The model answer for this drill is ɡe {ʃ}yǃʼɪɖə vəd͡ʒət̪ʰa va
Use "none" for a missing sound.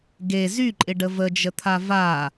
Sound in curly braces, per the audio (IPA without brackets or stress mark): z